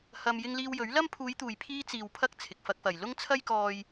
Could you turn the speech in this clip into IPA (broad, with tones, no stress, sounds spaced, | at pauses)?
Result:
h ɐ˧ m j ɪ˧ ŋ l iː˧ w j ɵ˨˥ ɥ l ɐ˥ m pʰ uː˨˧ j t̪ uː˨ j pʰ iː˧ t͡s iː˨ w pʰ ɐ˧ k̚ t͡sʰ ɪ˨ k̚ f ɐ˧ k̚ f ɐ˨ j l ʊ˥ ŋ t͡sʰ ɐ˥ j k ɔː˧ j